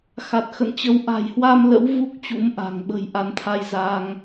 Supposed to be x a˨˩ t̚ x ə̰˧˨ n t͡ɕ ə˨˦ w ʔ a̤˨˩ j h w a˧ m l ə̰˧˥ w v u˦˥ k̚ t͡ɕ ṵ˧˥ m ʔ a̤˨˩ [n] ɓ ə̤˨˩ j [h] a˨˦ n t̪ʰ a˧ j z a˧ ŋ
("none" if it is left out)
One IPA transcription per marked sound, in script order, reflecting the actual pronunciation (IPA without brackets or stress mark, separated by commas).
ŋ, ʔ